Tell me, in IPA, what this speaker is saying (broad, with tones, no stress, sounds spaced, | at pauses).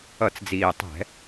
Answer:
ʌ˧˩˧ t͡s d͡z iː˨˩ tˤ ɛ̤˧˩˧